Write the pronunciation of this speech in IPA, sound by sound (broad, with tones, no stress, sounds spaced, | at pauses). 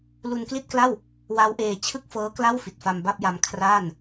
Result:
l u˧ n k l i˥˩ t̚ k l a˥˩ w | w a˦˥ w ʔ eː˧ t͡ɕʰ ɯ˥˩ k̚ f ɤː˦˥ k l a˥˩ w f i˨˩ t̚ f a˧ m b a˥˩ p̚ j a˧ m kʰ r aː˥˩ n